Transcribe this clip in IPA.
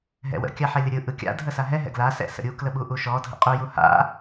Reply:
ɦɛ̰wə̰ kʲaħɛlʲəɾʲɯ ʔɯkʲa̰ dʱəsaɦɛ ɦɛ̰ɡla sɛ̰sə̰ɾʲu kləɓuʔuʃɔ dʱə̰qʼu juha̰

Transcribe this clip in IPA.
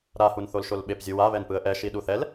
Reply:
ɾa hunθolʃolɓep zʲuwa βɛnpɯə̯ʔɛ ʃiɗuθɛl

